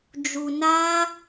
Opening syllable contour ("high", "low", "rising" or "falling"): low